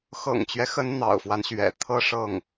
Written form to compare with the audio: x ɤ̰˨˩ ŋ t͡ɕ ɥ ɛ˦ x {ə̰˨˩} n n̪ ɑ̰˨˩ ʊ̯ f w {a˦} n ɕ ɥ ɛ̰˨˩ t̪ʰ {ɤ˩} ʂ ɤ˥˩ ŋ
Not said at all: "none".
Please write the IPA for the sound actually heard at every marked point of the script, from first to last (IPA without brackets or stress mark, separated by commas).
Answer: ə˧˥, a˦, ɤ˥